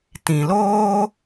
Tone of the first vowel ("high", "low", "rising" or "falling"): low